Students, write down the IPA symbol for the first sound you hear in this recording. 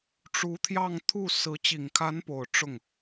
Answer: ʈ͡ʂ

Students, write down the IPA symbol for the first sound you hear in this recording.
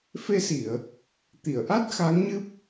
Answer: f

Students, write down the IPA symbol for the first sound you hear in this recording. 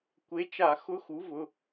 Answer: kʷ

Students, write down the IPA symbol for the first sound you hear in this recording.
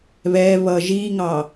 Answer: β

